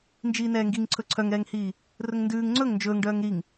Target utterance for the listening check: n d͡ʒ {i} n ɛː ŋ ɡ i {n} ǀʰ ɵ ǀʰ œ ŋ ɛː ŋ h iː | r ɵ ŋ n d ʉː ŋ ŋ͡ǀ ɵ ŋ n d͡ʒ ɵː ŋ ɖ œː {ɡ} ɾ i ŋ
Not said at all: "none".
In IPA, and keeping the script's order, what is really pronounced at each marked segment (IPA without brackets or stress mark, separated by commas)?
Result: iː, ŋ, ŋ